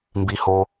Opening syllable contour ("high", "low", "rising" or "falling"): low